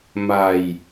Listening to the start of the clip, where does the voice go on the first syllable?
low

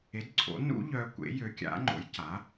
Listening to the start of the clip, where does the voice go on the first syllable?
rising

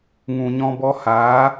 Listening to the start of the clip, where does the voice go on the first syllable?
low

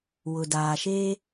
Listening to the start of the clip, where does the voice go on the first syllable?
low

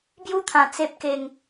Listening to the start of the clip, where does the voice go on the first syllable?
high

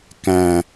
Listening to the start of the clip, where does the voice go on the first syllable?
low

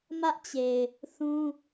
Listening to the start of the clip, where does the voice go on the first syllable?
high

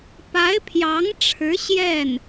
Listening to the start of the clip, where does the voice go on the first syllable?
rising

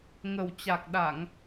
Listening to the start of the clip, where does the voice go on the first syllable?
low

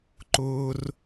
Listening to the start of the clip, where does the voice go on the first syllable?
high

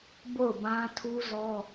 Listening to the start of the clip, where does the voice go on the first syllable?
falling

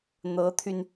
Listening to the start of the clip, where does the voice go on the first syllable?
rising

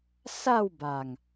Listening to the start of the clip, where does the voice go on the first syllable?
falling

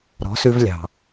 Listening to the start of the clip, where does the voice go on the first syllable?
rising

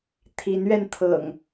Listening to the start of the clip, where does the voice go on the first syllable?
rising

